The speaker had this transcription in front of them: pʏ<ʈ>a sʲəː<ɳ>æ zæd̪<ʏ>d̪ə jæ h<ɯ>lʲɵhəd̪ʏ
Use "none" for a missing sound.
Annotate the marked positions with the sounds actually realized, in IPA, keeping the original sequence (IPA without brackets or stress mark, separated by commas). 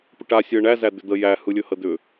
ʈ, ɳ, ʏ, ɯ